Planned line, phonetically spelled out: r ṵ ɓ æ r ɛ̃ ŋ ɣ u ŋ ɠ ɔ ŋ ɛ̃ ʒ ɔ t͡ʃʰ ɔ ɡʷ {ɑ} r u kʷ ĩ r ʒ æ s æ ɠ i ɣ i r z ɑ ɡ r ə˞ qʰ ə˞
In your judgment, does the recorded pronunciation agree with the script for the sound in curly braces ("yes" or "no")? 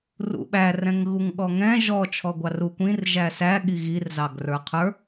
yes